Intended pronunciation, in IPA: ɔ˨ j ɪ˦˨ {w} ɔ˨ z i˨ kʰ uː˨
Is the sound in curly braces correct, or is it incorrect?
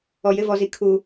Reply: incorrect